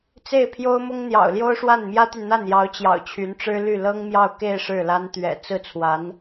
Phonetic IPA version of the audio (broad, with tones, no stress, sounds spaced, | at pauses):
t͡s e˥˩ ɪ̯ pʰ j o˥ ʊ̯ m ʊ˥ ŋ n̪ j ɑ̰˨˩ ʊ̯ l j o˥ ʊ̯ ʂ w a˥˩ n m j ä˥ t̪ y˨ n n̪ a˥˩ n j ɑ˧˥ ʊ̯ t͡ɕ j ɑ̰˨˩ ʊ̯ t͡ɕʰ y˧˥ n ʈ͡ʂ ɻ̩˥ l y˥˩ l ɤ˥ ŋ m j ɑ˥˧ ʊ̯ k e˥˧ ɪ̯ ʂ ɻ̩˥˩ l a˥ n t̪ ɥ ɛ̰˨˩ t͡s ɹ̩˥˩ t͡sʰ w a˧˥ n